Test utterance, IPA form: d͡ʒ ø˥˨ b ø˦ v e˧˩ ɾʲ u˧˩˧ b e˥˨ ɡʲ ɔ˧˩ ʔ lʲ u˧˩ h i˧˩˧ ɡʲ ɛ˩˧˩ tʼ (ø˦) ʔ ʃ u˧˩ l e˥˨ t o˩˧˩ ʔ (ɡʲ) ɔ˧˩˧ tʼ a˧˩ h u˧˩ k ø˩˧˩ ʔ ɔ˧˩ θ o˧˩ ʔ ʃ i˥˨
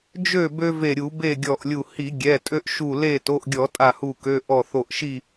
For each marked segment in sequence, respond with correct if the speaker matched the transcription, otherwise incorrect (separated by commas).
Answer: correct, correct